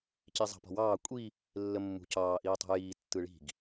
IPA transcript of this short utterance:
cizˤɑ̤pɔ̤wɑː kʷʼi | lːəmːṳcɑː ʔiːtˤṳjiː tːɯɭi̤ɡ

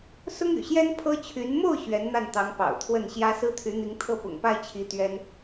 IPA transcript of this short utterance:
sʊ˥ŋy̰˨˩ɕjɛ˥n pʰɤ˥t͡ɕʰy˧˥n mo˥˩ʊ̯ ɕɥɛ˧˥nn̪a˥˩nt̪ɑ˧˥ŋ pɑ̰˨˩ʊ̯ t̪ʰwə˥˩nɕjä˥ sɹ̩˥t̪ʰy˧˥n̪i˧˥ŋ t̪ʰɤ˥˩pʊ̰˨˩ŋpa˥˩ɪ̯t͡ɕʰi˧˥ t̪ɥɛ˥n

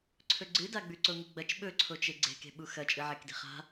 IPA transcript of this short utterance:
ǀʰɵɡ͡ǀɨdaɡ͡bʉ ǀoŋɨɡ͡bɐt͡ʃ ɓɵǀʰot͡ʃe ɡ͡ǀe̤ke̤ɓu xɐt͡ʃʼɨ ʕekdi̤χa̤

